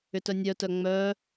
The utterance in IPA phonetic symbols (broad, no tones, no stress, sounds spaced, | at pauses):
ʏ t œ nʲ œ t œ ŋ͡m œ